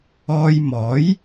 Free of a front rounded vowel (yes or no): yes